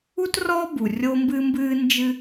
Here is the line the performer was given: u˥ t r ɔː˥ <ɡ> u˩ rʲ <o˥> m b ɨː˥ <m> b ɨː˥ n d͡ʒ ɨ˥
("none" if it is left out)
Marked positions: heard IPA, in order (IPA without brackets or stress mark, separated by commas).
b, o˥, m